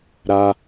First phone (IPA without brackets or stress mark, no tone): ɾ